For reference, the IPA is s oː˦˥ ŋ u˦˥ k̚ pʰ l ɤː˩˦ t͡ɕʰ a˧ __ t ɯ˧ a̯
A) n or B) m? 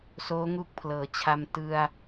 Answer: B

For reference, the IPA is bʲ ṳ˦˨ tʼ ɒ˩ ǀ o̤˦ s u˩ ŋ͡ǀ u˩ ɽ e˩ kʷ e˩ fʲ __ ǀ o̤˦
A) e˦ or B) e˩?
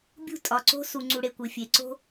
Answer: B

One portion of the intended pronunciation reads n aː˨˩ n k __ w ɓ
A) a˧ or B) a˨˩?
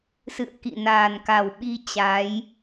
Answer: B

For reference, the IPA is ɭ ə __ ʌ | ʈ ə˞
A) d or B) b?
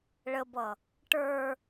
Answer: B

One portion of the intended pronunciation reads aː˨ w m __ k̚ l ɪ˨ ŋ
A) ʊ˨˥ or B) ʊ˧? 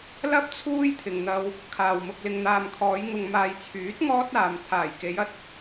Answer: B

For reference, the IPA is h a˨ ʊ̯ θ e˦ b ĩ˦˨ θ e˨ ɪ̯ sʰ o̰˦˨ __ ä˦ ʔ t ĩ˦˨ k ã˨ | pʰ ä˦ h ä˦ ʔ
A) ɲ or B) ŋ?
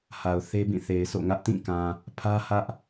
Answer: B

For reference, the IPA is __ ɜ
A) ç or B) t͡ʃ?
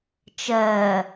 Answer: B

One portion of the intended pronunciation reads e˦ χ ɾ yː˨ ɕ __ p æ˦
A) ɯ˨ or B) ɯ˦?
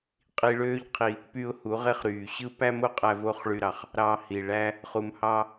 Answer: B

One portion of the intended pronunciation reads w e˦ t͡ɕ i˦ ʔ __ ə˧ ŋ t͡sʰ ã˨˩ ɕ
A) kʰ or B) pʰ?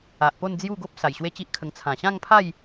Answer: A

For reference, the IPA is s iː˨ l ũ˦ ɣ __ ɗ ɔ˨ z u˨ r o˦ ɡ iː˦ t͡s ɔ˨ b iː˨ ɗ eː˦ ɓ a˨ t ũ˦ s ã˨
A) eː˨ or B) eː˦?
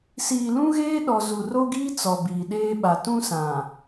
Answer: B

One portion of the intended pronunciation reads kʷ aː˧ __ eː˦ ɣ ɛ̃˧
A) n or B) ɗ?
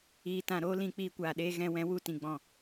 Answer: B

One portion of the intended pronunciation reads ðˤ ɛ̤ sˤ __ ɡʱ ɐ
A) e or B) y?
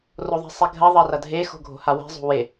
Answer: A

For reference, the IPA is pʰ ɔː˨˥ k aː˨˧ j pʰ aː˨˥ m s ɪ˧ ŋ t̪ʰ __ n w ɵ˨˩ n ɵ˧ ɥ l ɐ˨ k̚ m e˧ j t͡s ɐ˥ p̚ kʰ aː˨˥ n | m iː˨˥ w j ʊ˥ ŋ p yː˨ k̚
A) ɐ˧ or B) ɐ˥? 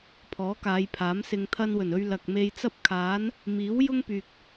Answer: A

